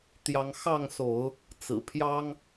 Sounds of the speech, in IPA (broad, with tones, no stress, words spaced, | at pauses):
t̪jɑ˨˦ŋ xɑ˥˨ŋso˨˦ʊ̯ | t͡sɹ̩˨˩pʰjɑ˦ŋ